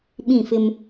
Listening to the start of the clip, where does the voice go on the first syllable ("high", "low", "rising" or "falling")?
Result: falling